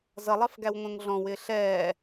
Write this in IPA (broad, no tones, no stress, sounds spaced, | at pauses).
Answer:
z ʌ lˠ ɑ f ɡ æ w ŋʷ ə̃ː ŋ ɮ ɔ̃ w ɪː ɬ ɛː